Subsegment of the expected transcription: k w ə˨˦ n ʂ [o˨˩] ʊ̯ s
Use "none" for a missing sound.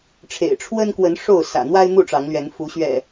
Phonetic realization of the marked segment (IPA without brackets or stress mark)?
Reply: o˥˨